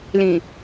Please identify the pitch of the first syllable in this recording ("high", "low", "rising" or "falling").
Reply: low